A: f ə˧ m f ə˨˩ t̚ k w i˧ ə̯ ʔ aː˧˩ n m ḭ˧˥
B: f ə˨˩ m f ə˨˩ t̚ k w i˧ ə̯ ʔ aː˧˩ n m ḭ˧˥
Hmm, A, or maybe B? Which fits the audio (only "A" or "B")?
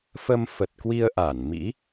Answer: A